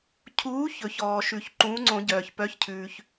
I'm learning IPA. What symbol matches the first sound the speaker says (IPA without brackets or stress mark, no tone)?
cʰ